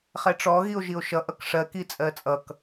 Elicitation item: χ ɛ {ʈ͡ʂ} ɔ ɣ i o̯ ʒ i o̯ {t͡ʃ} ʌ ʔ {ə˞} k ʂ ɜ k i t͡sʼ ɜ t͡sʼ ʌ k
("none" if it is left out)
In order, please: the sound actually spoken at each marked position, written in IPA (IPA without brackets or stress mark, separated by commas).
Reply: ʈ͡ʂ, ʃ, ʌ